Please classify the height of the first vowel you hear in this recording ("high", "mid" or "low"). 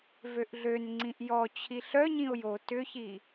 mid